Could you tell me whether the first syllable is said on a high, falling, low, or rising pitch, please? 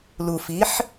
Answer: low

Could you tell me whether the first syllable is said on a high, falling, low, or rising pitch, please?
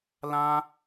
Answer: high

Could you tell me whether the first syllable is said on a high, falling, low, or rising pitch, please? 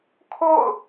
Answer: falling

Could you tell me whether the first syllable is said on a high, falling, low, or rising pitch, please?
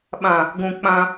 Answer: low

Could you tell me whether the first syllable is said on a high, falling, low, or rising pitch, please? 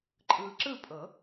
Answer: low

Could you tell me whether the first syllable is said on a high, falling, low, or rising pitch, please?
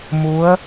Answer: rising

